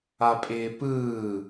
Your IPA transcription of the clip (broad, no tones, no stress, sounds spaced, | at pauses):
a pʼ ɪː p ɯː